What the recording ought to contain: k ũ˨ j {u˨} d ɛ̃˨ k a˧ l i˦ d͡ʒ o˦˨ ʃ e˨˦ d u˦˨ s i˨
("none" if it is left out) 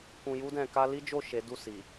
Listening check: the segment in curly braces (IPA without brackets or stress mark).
u˧